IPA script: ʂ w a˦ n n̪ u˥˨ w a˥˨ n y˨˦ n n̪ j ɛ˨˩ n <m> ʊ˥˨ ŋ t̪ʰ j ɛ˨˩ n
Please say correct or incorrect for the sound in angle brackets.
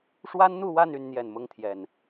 correct